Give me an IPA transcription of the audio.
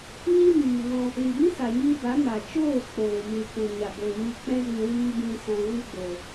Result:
ɲ i˦ m iː˨ ŋ ɔ̃˧ | l i˨ b ĩ˦ s a˨ ɲ iː˧ b a˨˦ m a˨ t͡ʃ oː˦˨ k͡p oː˨ m ɨ˨ k ũ˨ ɲ a˨ b o˨ ɲ ɨ˧ k͡p ɛ̃˦ z ĩ˧ w iː˦ b ĩ˧ s ɔ̃˨ ɣ ɨ˦ ɡ͡b o˨

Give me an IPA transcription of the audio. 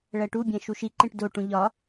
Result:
ɭ æ ʈ u bʲ æ̃ ʃ u ʃ i ǃ ẽ ʈ d o ʈ ũ ʎ ɒ

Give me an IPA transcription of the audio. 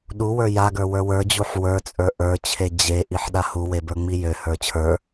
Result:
ɗ u w ə˞ j a ɡ ə˞ w ə˞ w ə˞ d͡ʑ u ħ w ə˞ t͡sʼ ə˞ ʔ ə˞ t͡ɕʰ e d͡ʑ e ʔ i ħ ɗ a h u w e b ə˞ ŋ͡m i j ø h ə˞ t͡ɕʰ ə˞

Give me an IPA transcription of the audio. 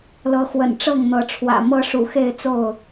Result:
l ɤ˨˦ x w ə̰˨˩ n ʈ͡ʂ ɤ˥˨ ŋ n̪ ɤ˨˦ ʈ͡ʂʰ w ä̰˨˩ m ɤ˦ ʂ ṵ˨˩ x e˥˨ ɪ̯ t͡s o˥˨ ʊ̯

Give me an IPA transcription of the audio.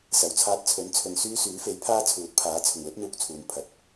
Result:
s ɐ˨˩ w t͡sʰ aː˧ t̚ t͡sʰ ɵ˨˥ n t͡sʰ ɵ˨ n s yː˥ s yː˨˥ f e˨˥ j pʰ aː˥ t͡sʰ uː˨˥ t̚ pʰ aː˨˥ t͡sʰ ʊ˨˩ ŋ l ɵ˥ t̚ n̪ uː˧ k̚ t͡sʰ uː˨ n pʰ ɐ˨˥ t̚

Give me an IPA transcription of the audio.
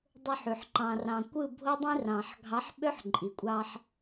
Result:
dˤ o˦ ħ y˨ ħ ǃ ɑ̃˨ r ɑ̃˨ kʷ ɯ˦˨ bʱ o˦ dˤ ĩ˦ r ɑ̃˨ ħ ɡʱ ɑ˨˦ ħ ɓ ø˦ ħ ǃʼ i˨ kʷʼ ɑ˦ ħ

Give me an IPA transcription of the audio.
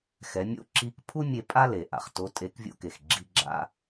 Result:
x ɛ˩˧ mʲ o̰˧˥ ǁ i˧˥ k pʰ u˥ mʲ e˧ pʼ a˥ l e˩ ʔ a̰˩ χ t o˧˥ tʼ e˧˥ k vʲ o̰˥ k e˩ x ɡ͡ǁ i˧ ɡ͡ǁ a̰˧

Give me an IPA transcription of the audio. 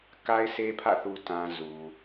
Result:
k a˦ ɪ̯ s e˦ pʰ ä̰˦˨ θ u˨ t ã˨ z u˨

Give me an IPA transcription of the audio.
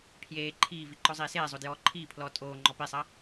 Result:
pʰ j eː ǃʰ iː v i ǃ ɔ zˤ iː s eː zˤ o d j ɔː ǃʰ iː pʰ l ɔː tʼ oː ŋ͡ǃ ɔ p i sˤ ɐ

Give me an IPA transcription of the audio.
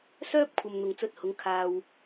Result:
s œː˥ p̚ kʷʰ ɐ˧ m n̪ ʊ˨ ŋ t͡s ɵ˥ t̚ h ʊ˨˧ ŋ kʰ aː˧ w

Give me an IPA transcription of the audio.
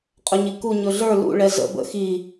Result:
qʼ ɵ ɲ i k u ɲ ɵ ɮ ə˞ l ṵ ɭ ɛ z ə̰ b ə̰ x i

